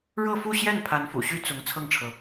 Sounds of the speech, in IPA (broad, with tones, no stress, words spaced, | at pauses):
ɻɤ˥˧fu˥˧ɕjɛ˥˩n pʰa˧˥nfṵ˨˩ɕy˥ t͡sʊ˧˥ŋ t͡sʰɤ˥˩ŋʈ͡ʂʰɤ˩